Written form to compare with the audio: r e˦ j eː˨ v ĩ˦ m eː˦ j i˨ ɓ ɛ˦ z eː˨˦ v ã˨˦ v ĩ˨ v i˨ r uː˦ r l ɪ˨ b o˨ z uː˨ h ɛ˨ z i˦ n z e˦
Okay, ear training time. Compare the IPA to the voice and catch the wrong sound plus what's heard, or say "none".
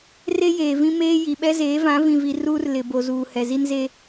none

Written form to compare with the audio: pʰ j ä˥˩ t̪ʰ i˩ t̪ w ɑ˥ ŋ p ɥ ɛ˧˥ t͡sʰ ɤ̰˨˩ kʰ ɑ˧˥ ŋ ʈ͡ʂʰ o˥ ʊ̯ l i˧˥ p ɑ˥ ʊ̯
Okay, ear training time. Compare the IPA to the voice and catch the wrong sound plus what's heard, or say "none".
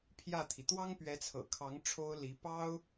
none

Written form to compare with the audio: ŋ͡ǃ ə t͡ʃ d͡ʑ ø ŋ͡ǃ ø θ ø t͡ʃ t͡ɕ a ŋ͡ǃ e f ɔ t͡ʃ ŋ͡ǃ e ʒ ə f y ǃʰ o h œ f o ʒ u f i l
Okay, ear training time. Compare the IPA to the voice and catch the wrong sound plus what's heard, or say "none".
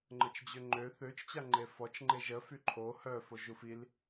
none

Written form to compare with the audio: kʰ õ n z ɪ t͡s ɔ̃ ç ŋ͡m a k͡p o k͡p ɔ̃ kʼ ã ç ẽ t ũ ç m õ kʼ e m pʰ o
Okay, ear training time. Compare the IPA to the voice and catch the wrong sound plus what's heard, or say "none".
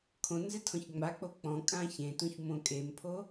t͡s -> tʰ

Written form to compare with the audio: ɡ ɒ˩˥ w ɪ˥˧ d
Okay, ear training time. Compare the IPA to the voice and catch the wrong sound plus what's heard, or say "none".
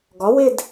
none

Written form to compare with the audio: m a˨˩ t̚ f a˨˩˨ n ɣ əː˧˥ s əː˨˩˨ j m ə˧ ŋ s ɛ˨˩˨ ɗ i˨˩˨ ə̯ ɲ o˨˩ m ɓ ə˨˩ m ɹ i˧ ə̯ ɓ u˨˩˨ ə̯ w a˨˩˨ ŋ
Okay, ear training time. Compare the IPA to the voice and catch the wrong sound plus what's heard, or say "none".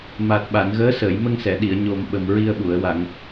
f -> ɓ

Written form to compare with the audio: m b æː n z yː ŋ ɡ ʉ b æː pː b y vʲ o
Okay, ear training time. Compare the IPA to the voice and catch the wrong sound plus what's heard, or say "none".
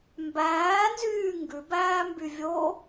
pː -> m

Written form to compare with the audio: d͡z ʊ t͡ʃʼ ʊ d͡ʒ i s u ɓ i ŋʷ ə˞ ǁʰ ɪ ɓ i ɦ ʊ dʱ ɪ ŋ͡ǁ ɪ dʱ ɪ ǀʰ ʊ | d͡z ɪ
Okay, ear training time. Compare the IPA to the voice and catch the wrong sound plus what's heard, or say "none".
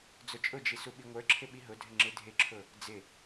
ǀʰ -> ǁʰ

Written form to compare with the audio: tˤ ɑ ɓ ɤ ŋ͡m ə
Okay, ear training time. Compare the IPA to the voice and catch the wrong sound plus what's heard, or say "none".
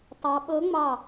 ə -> ɑ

